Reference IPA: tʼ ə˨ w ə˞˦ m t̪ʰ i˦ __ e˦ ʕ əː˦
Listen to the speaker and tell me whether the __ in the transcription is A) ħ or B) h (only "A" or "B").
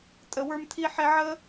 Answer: A